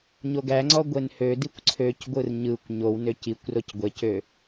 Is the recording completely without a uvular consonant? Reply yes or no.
yes